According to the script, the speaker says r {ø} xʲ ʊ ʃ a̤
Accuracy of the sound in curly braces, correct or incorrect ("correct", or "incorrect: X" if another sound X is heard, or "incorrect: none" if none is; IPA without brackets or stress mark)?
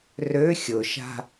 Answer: correct